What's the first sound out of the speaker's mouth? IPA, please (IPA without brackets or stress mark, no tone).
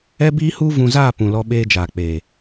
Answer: ɛ